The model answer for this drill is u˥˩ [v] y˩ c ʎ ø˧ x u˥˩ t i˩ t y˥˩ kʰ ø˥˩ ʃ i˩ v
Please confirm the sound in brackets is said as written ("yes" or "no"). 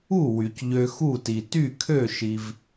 no